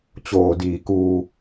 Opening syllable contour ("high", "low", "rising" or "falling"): low